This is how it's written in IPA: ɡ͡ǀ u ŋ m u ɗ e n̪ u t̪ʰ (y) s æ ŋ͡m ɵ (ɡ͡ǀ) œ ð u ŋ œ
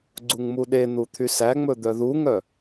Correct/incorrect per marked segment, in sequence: correct, incorrect: d̪

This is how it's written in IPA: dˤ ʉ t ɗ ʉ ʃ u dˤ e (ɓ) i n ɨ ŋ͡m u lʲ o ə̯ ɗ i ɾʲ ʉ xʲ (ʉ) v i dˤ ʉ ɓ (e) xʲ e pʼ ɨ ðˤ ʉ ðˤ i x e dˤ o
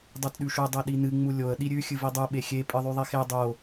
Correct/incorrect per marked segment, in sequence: incorrect: ɗ, incorrect: ɨ, correct

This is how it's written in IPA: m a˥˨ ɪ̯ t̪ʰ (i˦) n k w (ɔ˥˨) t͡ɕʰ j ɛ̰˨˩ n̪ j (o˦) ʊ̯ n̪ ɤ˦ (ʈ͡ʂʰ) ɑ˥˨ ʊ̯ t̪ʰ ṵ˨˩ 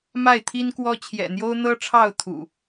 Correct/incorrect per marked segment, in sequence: correct, incorrect: ɔ˦, correct, correct

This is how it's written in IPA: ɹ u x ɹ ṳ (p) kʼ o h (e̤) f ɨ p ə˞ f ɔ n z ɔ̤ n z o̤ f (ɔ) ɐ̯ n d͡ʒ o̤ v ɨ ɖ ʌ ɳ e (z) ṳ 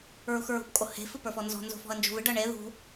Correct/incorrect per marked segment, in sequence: correct, correct, incorrect: ɔ̤, incorrect: ð

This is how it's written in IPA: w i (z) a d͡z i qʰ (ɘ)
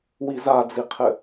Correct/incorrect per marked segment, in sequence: correct, correct

